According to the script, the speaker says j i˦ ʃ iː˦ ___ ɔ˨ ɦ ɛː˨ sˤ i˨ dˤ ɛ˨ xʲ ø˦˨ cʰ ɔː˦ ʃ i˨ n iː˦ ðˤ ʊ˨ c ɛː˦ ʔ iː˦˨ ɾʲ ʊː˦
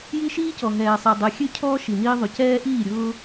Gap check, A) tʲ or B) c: B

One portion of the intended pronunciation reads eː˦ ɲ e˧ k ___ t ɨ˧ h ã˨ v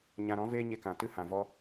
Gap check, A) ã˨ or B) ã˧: A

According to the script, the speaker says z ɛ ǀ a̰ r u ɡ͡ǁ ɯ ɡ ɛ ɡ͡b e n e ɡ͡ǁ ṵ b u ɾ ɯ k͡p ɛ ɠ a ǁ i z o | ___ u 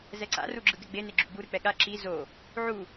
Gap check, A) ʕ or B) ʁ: A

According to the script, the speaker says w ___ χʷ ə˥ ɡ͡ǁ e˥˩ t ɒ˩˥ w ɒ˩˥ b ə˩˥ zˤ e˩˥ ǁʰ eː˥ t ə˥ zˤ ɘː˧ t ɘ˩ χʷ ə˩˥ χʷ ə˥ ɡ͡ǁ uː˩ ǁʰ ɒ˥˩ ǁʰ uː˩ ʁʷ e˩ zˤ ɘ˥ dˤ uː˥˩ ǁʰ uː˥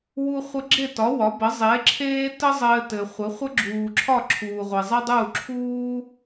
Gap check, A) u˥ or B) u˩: A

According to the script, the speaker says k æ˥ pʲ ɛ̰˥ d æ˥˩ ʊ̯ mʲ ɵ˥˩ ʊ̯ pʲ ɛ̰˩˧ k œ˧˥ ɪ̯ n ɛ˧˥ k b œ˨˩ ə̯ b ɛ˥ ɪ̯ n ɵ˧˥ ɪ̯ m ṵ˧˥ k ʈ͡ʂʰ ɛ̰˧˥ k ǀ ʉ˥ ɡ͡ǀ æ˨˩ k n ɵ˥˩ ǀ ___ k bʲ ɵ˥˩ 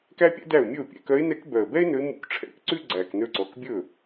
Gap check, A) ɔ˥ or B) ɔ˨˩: B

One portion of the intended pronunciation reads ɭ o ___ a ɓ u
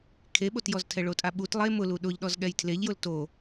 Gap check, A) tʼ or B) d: A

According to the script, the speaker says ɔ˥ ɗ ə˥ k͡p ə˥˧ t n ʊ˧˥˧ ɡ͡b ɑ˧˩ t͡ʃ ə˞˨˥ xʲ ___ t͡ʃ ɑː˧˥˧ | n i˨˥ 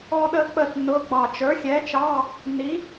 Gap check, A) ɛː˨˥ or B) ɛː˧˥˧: A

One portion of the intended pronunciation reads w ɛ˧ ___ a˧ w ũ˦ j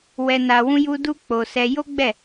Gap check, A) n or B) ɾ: A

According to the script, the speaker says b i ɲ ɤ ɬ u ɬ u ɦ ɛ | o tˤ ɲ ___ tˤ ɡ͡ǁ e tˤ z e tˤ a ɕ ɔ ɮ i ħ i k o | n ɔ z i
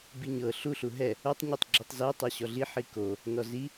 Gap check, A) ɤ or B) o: B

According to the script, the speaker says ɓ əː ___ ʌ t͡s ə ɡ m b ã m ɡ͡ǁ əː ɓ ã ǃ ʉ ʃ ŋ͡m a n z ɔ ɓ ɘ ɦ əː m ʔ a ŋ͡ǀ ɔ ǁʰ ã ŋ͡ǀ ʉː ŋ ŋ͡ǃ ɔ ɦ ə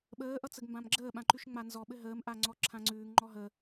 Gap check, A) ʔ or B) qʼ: A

